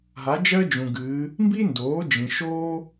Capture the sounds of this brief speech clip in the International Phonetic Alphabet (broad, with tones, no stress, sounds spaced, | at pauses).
ɦ a˩˥ d͡ʒ ɜ˥ d͡ʒ ũ˩ ɡ ɨː˩˧ | m b i˥ n d oː˩˥ d͡ʒ ĩ˩ ʃ oː˥